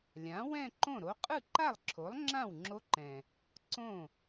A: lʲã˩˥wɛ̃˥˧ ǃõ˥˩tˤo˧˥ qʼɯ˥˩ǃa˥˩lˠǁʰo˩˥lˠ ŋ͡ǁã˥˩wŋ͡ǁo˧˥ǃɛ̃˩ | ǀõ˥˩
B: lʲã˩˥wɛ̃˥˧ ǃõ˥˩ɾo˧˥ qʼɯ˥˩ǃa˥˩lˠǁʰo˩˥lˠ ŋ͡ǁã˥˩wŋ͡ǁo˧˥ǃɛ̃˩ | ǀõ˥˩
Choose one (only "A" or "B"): B